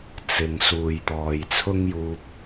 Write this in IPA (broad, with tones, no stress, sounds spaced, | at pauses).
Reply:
t͡s ɪ˨ ŋ s uː˨ j t̪ ɔː˨ j t͡sʰ ʊ˥ ŋ j uː˧ p̚